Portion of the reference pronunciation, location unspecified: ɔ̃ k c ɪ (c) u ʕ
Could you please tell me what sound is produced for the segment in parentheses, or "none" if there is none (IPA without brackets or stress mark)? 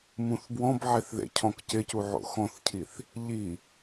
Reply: c